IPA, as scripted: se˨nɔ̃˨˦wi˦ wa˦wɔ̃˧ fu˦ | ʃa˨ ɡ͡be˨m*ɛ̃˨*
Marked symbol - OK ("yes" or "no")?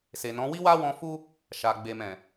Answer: yes